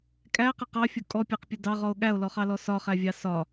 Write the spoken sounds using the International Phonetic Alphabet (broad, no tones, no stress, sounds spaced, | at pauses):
kʼ æ q ə q ɑ fʲ ʊ kʼ ɔ pʲ æ q pʲ ʊ d ɑ ʁ ɔ o̯ ɠ æ o̯ l ɔ χ ɑ l ɔ s ɒ χ æ vʲ ɑ s ɒ